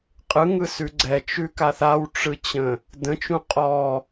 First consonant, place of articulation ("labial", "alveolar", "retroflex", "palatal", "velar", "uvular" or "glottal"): uvular